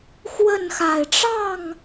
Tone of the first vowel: falling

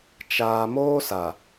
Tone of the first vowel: low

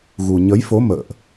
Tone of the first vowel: low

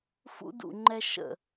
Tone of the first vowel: high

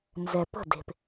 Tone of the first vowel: low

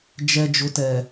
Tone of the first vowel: low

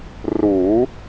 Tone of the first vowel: rising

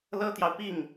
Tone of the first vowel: high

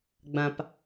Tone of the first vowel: low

